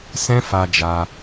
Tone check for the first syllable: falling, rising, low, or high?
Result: high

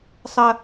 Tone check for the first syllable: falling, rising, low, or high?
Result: high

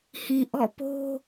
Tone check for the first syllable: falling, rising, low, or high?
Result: low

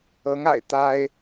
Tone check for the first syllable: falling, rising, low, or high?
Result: rising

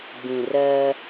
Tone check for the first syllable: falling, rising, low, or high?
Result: low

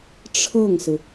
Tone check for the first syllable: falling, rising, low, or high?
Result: falling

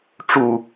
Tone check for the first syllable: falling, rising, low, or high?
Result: low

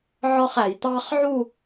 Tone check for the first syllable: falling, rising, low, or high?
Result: high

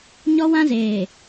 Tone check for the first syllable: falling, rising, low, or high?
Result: high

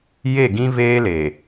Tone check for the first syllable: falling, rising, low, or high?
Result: falling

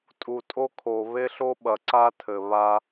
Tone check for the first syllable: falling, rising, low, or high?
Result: low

